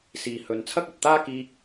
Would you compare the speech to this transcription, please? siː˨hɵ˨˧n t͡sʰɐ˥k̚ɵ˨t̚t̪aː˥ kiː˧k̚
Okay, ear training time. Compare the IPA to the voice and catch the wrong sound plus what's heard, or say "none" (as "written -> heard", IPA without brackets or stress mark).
none